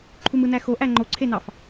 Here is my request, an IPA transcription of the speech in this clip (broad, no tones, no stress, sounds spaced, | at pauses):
ǃʰ u m ɯ n æ x o ʔ æ ŋ͡ǃ o ǀʰ e n ɑ f